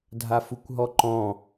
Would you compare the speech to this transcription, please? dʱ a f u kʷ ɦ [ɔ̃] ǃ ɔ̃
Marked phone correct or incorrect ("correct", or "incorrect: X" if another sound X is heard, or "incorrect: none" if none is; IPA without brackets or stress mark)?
incorrect: ɔ